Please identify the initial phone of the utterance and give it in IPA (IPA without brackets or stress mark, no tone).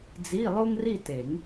d͡z